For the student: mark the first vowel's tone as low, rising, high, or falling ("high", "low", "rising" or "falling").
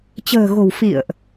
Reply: low